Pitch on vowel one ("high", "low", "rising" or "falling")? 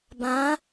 rising